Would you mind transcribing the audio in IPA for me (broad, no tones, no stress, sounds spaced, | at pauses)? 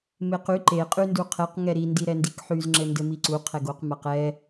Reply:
m e q y ǃ e qʼ y n d u qʰ ɛ q ŋ ɛ ɾ i n d i ɾ ɛ n d i k ħ y z ŋ͡ǁ ɘ n d ɘ m i ǀ u qʰ ɛ ɡ o q m a q ɛ